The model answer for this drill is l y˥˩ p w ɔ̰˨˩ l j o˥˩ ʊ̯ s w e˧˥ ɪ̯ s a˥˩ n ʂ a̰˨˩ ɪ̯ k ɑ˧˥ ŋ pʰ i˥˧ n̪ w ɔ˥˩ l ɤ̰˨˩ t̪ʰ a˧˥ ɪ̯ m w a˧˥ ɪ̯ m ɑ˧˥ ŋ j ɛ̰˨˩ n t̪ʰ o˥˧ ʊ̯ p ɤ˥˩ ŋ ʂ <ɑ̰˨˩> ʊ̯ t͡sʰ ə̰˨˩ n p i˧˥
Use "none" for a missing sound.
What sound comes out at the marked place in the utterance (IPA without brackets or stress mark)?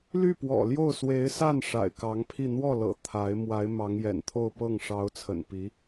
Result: ɑ˧˥